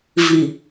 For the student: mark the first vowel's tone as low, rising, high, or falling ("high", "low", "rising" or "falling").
low